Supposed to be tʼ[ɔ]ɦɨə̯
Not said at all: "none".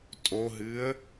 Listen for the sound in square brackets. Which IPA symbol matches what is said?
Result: o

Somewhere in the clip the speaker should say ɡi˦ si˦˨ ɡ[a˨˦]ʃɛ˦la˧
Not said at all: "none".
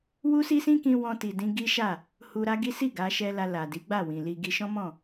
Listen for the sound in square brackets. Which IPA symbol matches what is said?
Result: a˨˦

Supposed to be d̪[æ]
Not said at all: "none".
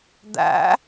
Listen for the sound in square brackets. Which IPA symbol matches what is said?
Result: æ̰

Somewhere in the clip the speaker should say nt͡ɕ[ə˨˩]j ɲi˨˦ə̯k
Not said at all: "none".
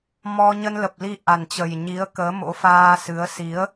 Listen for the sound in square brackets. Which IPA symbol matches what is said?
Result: ə˨˩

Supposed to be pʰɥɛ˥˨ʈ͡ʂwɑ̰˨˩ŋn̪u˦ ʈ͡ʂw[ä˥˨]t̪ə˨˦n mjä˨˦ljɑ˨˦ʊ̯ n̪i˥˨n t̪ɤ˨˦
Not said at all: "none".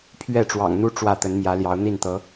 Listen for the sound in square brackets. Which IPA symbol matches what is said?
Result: ä˥˨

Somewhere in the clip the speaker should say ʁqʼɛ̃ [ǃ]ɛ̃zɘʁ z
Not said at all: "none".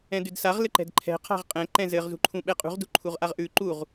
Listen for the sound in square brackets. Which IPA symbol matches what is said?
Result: ǃ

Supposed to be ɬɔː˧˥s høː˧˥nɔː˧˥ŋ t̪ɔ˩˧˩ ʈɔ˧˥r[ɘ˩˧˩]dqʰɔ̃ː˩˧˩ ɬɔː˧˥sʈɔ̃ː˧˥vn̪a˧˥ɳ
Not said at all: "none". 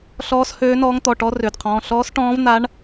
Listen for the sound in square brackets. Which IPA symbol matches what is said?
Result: ø˩˧˩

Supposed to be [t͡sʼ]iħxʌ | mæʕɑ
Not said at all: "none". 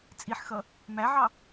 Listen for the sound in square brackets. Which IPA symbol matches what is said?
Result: t͡sʼ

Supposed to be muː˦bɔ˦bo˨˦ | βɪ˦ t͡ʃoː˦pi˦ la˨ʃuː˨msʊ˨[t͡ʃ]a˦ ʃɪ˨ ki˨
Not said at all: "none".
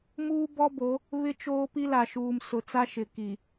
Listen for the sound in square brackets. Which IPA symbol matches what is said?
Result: t͡s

